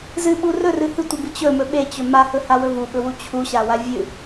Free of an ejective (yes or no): yes